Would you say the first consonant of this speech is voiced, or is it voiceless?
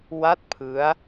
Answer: voiced